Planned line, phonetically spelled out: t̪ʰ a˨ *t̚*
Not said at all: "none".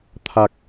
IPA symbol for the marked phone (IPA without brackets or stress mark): k̚